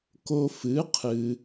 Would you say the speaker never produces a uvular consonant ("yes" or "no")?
no